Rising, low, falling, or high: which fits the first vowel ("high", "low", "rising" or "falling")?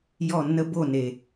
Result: falling